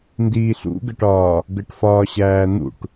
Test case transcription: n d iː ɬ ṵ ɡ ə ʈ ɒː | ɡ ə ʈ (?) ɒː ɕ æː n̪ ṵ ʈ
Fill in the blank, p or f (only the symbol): f